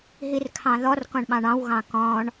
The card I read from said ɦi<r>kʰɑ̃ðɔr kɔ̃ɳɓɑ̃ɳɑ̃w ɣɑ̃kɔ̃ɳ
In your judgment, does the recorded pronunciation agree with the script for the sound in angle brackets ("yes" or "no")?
yes